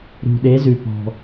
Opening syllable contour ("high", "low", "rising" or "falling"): low